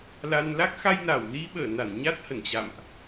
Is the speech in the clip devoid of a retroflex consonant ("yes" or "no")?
yes